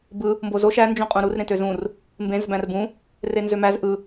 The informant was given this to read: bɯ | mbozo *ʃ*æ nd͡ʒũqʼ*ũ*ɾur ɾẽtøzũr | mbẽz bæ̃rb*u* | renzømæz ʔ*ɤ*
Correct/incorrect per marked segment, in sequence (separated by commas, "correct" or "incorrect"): correct, correct, incorrect, incorrect